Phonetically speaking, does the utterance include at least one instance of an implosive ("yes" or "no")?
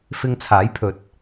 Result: no